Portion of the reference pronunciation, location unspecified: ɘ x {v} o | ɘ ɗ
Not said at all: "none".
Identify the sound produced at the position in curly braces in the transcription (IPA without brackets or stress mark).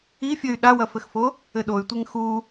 f